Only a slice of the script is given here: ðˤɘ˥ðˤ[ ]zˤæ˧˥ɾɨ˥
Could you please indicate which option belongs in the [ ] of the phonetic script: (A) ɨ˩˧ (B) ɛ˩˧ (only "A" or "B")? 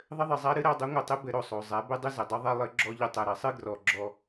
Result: A